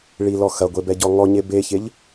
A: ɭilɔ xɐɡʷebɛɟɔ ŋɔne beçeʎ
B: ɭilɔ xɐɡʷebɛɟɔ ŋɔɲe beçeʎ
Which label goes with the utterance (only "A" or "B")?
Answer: B